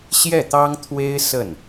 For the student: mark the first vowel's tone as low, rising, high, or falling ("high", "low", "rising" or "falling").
falling